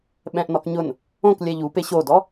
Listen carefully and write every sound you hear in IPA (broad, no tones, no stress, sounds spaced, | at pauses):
ɓ ɛ̃ ʔ n ɔ k ɲ ʊ n | õ k lʲ ɛ ʎ u p e ɕ o d ɔ